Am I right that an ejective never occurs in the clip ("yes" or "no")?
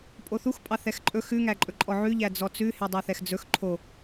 no